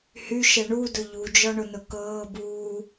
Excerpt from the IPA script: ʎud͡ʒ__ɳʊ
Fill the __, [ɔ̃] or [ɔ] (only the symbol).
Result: ɔ